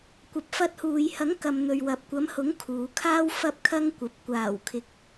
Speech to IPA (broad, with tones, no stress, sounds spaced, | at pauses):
kʷ ɐ˨ p̚ f ɐ˧ t̚ h uː˨ j h ɐ˨˥ ŋ k ɐ˨ m n̪ ɵ˨ ɥ w ɐ˨ p̚ kʷ ɐ˨˥ m h ʊ˨˥ ŋ kʰ uː˨˧ kʰ aː˥ w f ɐ˥ p̚ kʰ ɐ˥ ŋ kʷ ɐ˨˥ p̚ kʷ aː˨˩ w kʰ ɪ˨ k̚